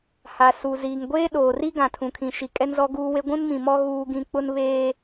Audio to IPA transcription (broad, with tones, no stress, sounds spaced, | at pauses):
h a˨ s u˨ z iː˨ ŋ ɡʷ eː˦ ɗ oː˨ r i˦ ɡ ã˨ tʰ ũ˨ kʰ ĩ˨ ʃ i˨ kʼ ɛ˦ n z ɔ˦ ɡ uː˦ w e˦ ɡʷ ũ˦ n m ĩ˨ m ɔ˦ ɣ uː˦ ɡ ĩ˦ k͡p ʊ˦ n β eː˦